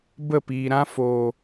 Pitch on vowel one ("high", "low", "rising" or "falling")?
falling